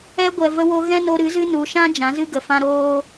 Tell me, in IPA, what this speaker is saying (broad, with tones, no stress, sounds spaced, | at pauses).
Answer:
ɛ˧ ɡʷ ɛ˨ v ə˧ w o˧ ɣ ɛ̃˦ n o˧ ɾ ɨ˨˦ z ɨ˦ n u˨ ʃ ã˦ d͡ʒ ã˨˦ z ɨ˦ ɡ ə˨ f ã˦ ɾ oː˦